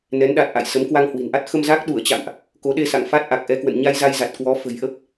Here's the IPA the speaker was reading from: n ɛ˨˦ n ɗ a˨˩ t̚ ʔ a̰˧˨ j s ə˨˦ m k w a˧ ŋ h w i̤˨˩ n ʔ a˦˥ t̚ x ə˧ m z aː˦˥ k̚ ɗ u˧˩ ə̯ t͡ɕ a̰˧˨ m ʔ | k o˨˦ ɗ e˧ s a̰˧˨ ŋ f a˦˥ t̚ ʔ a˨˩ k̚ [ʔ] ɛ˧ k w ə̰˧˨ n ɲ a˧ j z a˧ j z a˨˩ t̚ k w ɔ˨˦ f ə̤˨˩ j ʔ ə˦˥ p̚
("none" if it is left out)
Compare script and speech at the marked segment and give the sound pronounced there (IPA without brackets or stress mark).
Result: ʔ